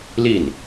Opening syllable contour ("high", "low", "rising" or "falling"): falling